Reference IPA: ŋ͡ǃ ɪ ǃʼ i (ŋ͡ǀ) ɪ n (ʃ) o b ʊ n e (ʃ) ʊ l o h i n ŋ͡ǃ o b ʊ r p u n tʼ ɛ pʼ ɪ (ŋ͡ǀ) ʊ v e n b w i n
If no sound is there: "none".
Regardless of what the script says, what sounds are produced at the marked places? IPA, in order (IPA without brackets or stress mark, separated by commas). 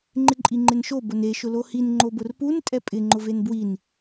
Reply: ŋ͡ǃ, ʃ, ʃ, ŋ͡ǃ